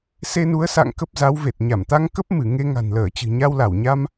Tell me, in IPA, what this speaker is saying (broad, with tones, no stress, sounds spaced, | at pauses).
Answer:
s e˧ n u˨˦ ə̯ s a̰˧˨ ŋ k ə˦˥ p̚ z a˨˦ w v e˨˩ t̚ ɲ a˧˩ m t̪ a˧ ŋ k ə˦˥ p̚ m ɨ˧˩ ŋ e˧ ŋ a̤˨˩ n l əː˧˩ t͡ɕ ɨ̤˨˩ ɲ a˧ w l a˧˩ w ɲ a˧ m